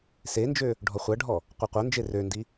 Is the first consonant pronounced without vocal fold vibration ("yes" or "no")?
yes